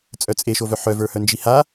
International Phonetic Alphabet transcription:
t͡sʼ œ t͡sʼ e ʃ o v œ ħ œ v ə˞ h œ n d͡ʒ i h a

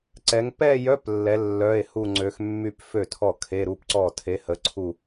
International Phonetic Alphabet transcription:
ǀ ɛ˧˥ ŋ p ɛ˥˧ j œ˧˥˧ p lː ɛ˧˥ lː œ˧˥˧ e̯ h u˥˧ ŋ͡ǀ ø˧˥ x mː y˥˧ p f ø˥˩ tʰ ɔ˥˩ kʰ e˧˥˧ ɾ u˥˧ p ǀ ɔ˥˩ tʰ e˧˥ h ə˧˥ ǀʰ u˥˧

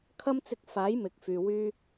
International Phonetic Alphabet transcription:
kʰ ɐ˥ m t͡s ɪ˧ k̚ f aː˨˥ j m ɪ˨˥ k̚ f yː˨ w yː˥

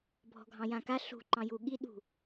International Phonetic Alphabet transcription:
bʱ ɔ̤ ɡʱ ɑ̃ j ã k a ɬ ṳ ǃ ɑ̃ j u ɠ i ɗ ṳ

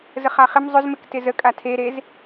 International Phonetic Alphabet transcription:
z ə χ a χ ɪ m zˤ ʏ z m ɪ k t ɪ z ə kʼ a tʰ e ɾ e z

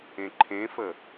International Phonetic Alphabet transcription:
ẽ ǃʰ ẽ f ə

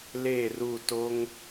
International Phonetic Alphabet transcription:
l eː˦˨ r u˦˨ t o˦ ŋ

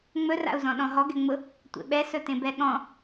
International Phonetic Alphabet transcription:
ŋ͡m ɵ r a̰ u̯ z ɔ̃ ɗ ɔ̃ ɦ ɔ ɡ ɛ ŋ͡m ʊ | tʷ ḛ ɓ ɛ s ɵ t ẽ b ɛ ɠ ɔ̃

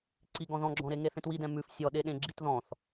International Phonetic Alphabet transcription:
ǀ i ɡ ɔ̃ ð ɔ̃ ɡ͡ǁ ɔ̃ ɾ e ŋ e θ ẽ t w i d ɛ̃ m ʉ f sʲ ɔ ɗ e ɗ ẽ ɡ͡ǁ i t ð ɔ̃ θ

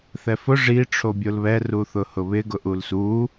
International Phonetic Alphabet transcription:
θ ɛ f ʊ ʐ i ʈ͡ʂʰ o bʲ o l β ɛ r u θ ʊ h ʊ β ɪ ɡ ʊ ʔ u l s u

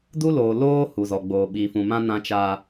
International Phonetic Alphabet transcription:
d u˦ l oː˨ l oː˦ h u˨ z ɔ˨ ɡ͡b oː˨ ɓ iː˨ f ũ˨ m ã˦ n ã˦ t͡ʃ a˦

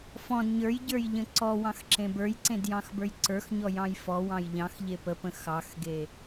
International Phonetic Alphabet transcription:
f ɔ̃ d ɲ ə˞ j ɟ ə˞ j ʎ ə̃ ǀ ɔ w ɑ̃ x ǁ ẽ b ə˞ j ǀ ẽ d j ɑ̃ x b ə˞ j ǀ ə˞ x ɲ ɔ j ɑ̃ j f ɔ w ɑ̃ j ʎ ɑ̃ x ʎ e p ə p ə̃ x ɑ x ɡ e

